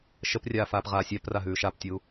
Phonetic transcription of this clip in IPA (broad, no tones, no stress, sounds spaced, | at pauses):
ʃ ə p rʲ aː f aː p ʁ aː sʲ æ p r a ɦ ʉː ʃ a p tʲ uː